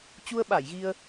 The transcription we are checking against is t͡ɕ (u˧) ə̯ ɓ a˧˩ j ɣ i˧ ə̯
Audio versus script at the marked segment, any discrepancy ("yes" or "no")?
no